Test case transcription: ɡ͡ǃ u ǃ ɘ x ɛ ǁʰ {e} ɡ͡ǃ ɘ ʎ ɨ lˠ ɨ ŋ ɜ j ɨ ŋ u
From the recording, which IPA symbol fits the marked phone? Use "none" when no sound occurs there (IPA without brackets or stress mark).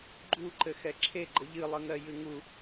e